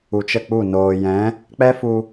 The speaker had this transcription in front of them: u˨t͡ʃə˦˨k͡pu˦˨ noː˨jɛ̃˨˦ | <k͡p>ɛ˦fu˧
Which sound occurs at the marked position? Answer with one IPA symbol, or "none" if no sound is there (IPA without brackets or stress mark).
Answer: k͡p